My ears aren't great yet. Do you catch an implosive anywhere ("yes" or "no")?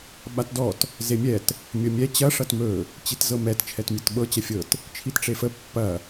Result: yes